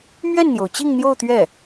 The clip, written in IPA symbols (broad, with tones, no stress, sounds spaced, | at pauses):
m ɥ ɛ˥˩ n n̪ j o˩ ʊ̯ t͡ɕ i˥˧ ŋ n̪ j o˥˧ ʊ̯ t̪ ɥ ɛ˥˩